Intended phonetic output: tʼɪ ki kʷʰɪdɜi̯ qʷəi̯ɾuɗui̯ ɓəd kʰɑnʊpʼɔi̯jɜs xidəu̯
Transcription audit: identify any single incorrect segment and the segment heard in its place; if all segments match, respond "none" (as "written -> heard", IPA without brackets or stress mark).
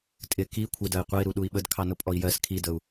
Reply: x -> kʰ